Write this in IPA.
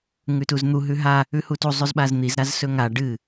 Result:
ŋʉtuzn̪u ɦʉɦa | ʉhutu zˤʉzɓazn̪iz ɾazsɵŋa ɖɨ

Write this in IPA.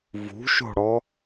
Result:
vṳʃo̤ɽɔ

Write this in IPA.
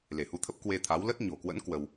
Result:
le˧˩hu˧t̪ʰə˦˥p̚ kwe˧t̪ʰa˨˦w lə˦˥t̚ ɲo̤˨˩kwə̰˧˥n kwə˧w

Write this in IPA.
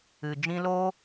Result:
ɨ˨d͡ʒĩ˧loː˦

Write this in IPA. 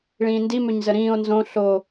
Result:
ɭĩːndi møɲzəɾĩːo̯ nzõ ɬo

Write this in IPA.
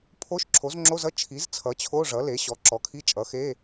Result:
pʰo˧˥˧ʃǁʰo˩˥zŋ͡ǁo˧˥˧zʌ˧˥˧ t͡ʃʰi˩˥zt͡sʰʌ˩˥t͡ɕʰo˧˥˧ ʐʌ˩˥le˩˥ɕɔ˩˥ ǁɔ˩˥kʰi˧˥˧t͡ʃʼʌ˩˥xe˧˥˧

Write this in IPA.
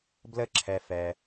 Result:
blə˦ǁʰɛ˨fɛ˨

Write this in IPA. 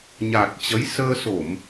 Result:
ɲa˨˩t̚ t͡ɕə˨˦j səː˧so˧˩˨m

